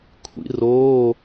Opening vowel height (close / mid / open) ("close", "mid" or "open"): close